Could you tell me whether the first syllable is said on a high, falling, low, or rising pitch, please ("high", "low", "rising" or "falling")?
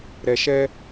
low